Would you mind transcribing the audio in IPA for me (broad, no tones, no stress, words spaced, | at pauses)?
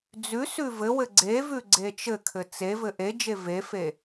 d͡zʉ sʉvɘwɘ ɡ͡ǀevʉ ɡ͡ǀet͡ʃɘkʰɘ t͡sevɘ ʔed͡ʒe vefe